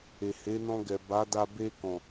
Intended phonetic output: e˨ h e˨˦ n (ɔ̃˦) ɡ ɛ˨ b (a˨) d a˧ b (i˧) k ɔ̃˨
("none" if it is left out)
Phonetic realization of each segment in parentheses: ɔ̃˧, a˨˦, e˧

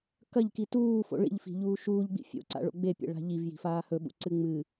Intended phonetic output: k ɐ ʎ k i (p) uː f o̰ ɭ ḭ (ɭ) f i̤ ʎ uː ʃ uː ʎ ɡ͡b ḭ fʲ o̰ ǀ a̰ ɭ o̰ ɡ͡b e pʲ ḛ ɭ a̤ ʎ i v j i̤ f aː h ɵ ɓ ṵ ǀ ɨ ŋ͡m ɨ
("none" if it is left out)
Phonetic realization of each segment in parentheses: t, ʎ

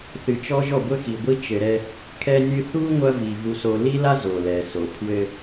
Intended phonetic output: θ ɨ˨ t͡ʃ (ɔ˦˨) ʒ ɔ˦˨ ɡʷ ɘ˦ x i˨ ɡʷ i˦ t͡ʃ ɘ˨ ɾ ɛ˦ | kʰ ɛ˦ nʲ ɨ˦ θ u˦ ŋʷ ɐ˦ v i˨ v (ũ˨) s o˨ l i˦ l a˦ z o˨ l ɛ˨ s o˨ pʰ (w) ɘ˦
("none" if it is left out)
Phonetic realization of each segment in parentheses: ɔ˦, u˨, w

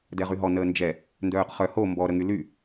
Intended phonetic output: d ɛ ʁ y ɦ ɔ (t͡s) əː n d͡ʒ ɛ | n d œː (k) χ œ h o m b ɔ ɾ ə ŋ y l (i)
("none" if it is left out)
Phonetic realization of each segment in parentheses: n, q, y

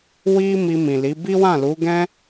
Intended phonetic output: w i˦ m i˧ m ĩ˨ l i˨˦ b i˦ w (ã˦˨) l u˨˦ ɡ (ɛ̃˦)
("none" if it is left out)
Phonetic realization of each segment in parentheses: ã˦˨, ɛ̃˦

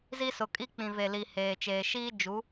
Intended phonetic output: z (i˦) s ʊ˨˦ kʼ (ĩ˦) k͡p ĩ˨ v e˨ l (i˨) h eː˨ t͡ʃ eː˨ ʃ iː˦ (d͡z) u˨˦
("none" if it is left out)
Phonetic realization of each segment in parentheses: i˦, i˦, i˨, d͡ʒ

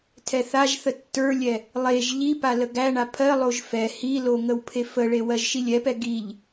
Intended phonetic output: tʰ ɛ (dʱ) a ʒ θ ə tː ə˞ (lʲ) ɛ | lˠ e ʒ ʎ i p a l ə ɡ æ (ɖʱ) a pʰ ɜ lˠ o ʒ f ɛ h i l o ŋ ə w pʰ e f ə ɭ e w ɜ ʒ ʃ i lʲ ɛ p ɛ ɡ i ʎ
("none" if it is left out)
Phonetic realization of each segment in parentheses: θ, lʲ, ɳ

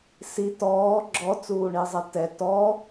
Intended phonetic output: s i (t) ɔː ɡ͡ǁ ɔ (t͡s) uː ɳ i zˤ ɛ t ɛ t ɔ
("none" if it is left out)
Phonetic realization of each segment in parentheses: t, t͡s

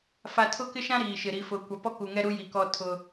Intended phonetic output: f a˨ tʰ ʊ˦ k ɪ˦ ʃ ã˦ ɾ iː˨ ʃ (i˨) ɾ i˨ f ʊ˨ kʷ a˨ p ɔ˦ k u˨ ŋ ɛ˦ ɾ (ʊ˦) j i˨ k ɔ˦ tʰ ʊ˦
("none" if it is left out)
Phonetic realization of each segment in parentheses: ɪ˨, u˦

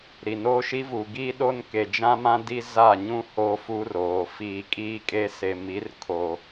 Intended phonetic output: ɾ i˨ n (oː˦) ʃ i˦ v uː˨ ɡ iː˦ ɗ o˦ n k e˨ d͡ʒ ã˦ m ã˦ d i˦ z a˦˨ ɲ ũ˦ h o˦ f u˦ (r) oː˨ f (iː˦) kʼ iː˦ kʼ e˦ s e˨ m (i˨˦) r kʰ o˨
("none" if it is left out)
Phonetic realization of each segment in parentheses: oː˦, r, iː˨, i˨˦

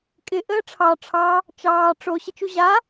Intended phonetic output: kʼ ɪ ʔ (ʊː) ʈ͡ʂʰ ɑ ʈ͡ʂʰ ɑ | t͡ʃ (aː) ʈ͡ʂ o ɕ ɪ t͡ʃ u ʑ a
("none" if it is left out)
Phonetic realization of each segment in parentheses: əː, ɑː

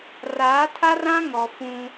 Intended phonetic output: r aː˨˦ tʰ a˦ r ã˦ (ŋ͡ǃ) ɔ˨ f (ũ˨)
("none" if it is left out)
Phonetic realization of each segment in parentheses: ŋ, ũ˦

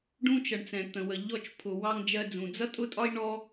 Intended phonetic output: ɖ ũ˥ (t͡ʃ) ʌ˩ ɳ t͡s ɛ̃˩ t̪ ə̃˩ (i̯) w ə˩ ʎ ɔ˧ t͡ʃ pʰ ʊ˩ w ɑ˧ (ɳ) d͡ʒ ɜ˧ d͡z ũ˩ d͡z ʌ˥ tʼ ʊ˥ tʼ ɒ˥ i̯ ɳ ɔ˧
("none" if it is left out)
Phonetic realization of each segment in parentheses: t͡ʃ, none, ŋ

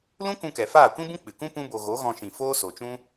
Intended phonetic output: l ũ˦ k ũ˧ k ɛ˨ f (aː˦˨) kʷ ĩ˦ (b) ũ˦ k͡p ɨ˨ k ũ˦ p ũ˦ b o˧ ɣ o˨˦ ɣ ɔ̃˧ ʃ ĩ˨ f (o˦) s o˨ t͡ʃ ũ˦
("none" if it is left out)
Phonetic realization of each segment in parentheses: aː˦˨, b, oː˦

